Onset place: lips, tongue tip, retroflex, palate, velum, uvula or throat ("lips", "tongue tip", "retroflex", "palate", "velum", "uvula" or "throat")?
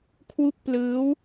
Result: velum